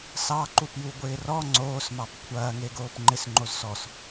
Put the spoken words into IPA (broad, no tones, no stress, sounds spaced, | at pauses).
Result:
s ɑ ǃ u p j u ɡʷ ɪː r ɔ ŋ͡ǀ oː s m ɑ p kʷʰ ɐː ŋ e ɡ oː p ŋ͡ǃ ɪ s ŋ͡ǃ o z s ɔ s